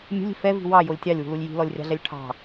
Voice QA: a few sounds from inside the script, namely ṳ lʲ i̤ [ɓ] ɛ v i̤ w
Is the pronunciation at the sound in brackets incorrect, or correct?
incorrect